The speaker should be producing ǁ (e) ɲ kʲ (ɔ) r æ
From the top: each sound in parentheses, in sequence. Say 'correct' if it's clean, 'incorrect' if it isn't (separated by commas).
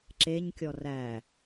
correct, correct